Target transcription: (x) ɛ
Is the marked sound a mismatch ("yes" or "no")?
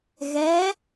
yes